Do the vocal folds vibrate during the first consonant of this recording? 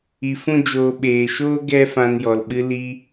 no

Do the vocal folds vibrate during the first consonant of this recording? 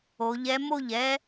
yes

